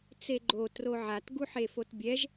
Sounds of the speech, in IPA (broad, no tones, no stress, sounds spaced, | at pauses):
t͡s e ɡ͡ǃ o t r o ʕ a t ɡ u ħ e f o t bʲ ɛ ʒ